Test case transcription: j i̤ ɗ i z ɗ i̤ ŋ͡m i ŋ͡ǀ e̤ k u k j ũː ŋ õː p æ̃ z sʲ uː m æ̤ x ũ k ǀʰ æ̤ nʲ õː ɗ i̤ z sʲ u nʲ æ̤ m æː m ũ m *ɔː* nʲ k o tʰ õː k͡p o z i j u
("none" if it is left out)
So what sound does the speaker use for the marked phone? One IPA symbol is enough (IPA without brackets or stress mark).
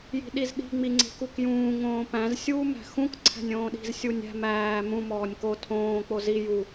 ɔː